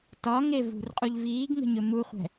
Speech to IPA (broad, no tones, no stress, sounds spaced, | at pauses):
t ɒ ŋ e v ṳ r qʼ u ʎ v iː ɡ ŋ ə̤ ɲ ɵ m u χʷ ɛ̤